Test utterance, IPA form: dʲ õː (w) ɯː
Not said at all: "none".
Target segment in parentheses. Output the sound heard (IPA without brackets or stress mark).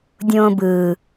b